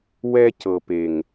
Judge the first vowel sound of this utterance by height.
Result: mid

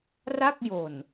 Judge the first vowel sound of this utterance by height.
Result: low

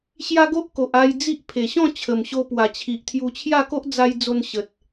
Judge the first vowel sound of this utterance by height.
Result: low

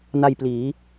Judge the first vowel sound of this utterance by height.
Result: low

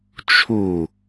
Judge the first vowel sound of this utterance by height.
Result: high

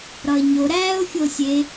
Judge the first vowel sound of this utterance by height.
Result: low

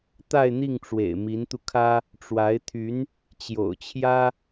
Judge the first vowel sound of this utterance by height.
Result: low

